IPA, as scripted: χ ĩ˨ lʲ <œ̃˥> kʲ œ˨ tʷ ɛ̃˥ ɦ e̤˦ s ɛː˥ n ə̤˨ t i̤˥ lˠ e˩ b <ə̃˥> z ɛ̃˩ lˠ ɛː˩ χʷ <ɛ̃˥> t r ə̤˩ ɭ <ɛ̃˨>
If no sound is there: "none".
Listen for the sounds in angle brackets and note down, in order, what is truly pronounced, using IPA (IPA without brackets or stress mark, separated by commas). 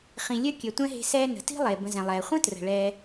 œ˥, ə̃˨, ə̃˥, ɛ˨